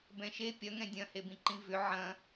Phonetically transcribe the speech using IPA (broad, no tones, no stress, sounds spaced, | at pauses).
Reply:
b ɛ̃ ʃ e pʲ ɐ ŋ ɛ̃ dʲ ɐ̃ h e b ĩ ǃ ĩ v ʏ ʕ ɐ̃